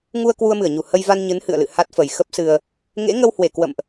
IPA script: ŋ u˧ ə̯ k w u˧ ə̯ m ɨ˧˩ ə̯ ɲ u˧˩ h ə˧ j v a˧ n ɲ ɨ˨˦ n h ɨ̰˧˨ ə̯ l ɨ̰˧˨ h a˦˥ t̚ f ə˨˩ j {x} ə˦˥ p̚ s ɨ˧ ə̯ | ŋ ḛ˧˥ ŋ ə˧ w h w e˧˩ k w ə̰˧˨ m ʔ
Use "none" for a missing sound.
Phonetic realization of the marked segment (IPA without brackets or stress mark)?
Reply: x